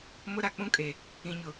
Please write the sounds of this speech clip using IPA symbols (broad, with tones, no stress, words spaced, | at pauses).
mʊ˦ɾa˨k͡pũ˦kʼe˨ | ĩ˨ɲʊ˨